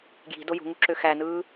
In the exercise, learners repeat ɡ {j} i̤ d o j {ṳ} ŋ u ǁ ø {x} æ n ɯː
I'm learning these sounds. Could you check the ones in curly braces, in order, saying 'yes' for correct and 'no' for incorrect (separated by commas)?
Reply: yes, yes, yes